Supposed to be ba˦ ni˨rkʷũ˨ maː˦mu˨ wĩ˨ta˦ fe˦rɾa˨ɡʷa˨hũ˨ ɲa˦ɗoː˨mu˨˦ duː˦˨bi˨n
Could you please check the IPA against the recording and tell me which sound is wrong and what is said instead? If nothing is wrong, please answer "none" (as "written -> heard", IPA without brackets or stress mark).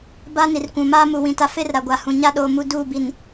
none